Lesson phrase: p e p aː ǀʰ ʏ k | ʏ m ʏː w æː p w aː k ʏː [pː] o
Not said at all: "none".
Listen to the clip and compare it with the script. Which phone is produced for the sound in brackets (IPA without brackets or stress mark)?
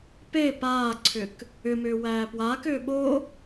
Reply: ɓ